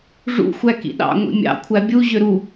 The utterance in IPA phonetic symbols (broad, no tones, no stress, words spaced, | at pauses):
ʐṵxʷæ kḭɗɑ̰ ŋʷḭmʲɑ̰ kʷʰæbʲu ʑøɾu